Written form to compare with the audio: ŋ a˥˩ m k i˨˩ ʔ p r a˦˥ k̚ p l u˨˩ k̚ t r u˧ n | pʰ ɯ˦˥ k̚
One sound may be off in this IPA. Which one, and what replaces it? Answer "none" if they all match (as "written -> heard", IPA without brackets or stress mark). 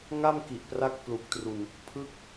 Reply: none